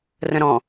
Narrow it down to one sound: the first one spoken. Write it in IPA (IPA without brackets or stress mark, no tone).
r